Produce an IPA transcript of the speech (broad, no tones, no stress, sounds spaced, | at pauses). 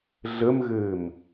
ɮ ə m ɣ ɘː m